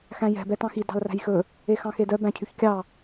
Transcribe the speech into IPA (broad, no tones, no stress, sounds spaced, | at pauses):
x æ̃ j ɛ̤ b ɛ t ɑ̃ x i d ɑ̤ l r æ̤ j x ɵ | e x ɑ̃ x e d œ b æ̃ cʰ y ç kʲ ɑ